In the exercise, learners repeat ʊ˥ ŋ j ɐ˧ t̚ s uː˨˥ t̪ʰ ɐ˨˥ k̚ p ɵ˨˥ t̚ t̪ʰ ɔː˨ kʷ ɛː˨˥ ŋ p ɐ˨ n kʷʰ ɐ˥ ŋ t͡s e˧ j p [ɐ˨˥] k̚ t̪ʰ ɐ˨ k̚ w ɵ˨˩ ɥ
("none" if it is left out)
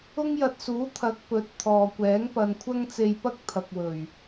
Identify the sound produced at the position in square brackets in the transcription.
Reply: ɐ˥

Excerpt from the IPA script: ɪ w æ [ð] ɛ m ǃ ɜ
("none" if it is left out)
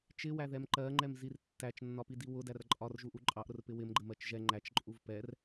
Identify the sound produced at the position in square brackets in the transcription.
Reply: ð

